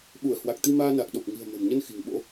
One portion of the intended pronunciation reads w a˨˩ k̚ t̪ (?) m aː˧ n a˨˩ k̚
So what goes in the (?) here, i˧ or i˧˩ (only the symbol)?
i˧